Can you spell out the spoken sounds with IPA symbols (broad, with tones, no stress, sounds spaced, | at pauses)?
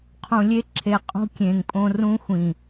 qʰ ũ˨ lʲ e˦ ǁʰ e˨ qʼ ṳ˦ kʲ ẽ˨ ŋ pʼ õ˦ r ũ˦ xʷ ĩ˨